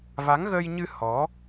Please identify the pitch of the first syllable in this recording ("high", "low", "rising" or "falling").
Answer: rising